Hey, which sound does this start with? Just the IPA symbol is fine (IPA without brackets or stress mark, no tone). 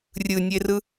rʲ